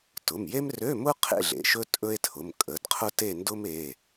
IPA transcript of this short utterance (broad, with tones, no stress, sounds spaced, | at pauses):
t ʊ˩˧˩ m j e˥ m r ø˧˥˧ m ʊ˥ qʰ ḛ˥˧ ɮ ḛ˩˧˩ ʃ ɵ˥ tʼ ɵ˥ e̯ tʰ ʊ˩˧˩ m kʼ ə˩˧˩ d qʰ ʊ˥ t e˥˧ n d ʊ˥ m e˩˧˩